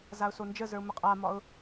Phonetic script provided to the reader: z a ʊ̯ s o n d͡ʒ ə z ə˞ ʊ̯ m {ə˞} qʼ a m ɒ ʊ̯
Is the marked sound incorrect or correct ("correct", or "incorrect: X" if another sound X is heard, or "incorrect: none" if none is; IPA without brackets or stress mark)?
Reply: incorrect: ə